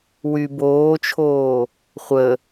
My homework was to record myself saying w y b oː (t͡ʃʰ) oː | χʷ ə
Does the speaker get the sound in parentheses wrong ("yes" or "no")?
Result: no